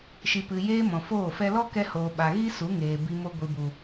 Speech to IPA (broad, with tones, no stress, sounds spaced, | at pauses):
ʃ i˨ p ɨ˨ j eː˧ m ɔ̃˨ f oː˦˨ f ɛ˦ l ɔ˦ k ɛ˧ h oː˨ ɓ a˨ ɣ i˦ s u˨˦ ŋ eː˨ b i˧ m o˧ ɡʷ i˨ b u˨